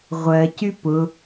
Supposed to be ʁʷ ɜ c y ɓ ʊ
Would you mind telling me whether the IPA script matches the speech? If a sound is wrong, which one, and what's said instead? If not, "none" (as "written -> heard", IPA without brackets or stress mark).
ɓ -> p